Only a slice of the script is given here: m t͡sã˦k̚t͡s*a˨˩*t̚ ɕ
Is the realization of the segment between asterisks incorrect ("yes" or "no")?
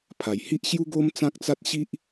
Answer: yes